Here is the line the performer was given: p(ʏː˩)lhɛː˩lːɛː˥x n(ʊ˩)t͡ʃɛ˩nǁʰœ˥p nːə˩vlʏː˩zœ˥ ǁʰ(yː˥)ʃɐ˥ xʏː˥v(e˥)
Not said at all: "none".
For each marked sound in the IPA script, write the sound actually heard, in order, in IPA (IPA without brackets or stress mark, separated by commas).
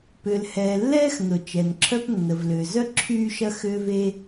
ʏː˩, ʊ˩, yː˥, e˥